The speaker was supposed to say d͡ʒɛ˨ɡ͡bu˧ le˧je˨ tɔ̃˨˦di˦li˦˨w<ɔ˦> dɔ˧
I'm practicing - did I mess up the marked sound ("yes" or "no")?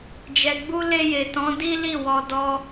yes